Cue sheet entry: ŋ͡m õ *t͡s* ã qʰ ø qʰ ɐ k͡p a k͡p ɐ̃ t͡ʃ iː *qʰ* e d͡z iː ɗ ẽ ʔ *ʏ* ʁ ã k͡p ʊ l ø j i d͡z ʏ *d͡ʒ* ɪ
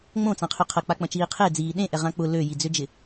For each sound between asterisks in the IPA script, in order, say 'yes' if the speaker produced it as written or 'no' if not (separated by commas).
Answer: yes, yes, no, yes